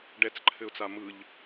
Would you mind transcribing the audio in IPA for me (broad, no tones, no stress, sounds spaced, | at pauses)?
ɖ ɛ t͡s ǃʰ ɘ ʊ̯ t͡s a m ɯ ʎ